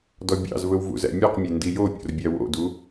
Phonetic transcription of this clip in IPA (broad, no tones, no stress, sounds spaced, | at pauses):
d ɔ bʲ ɑ̰ z v ɵ w v ṵ z æ̰ mʲ ʉ q mʲ e n d i j o pʲ o̰ r bʲ æ w o̰ d u